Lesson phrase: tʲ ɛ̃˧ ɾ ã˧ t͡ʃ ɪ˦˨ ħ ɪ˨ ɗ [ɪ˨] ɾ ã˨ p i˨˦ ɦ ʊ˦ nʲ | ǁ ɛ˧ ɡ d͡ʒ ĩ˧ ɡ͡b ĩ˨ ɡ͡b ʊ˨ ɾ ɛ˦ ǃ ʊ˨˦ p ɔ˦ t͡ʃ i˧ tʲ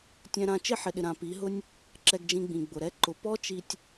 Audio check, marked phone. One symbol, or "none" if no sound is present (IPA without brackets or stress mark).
ɪ˨